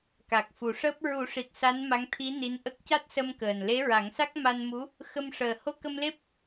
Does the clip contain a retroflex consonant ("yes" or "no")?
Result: yes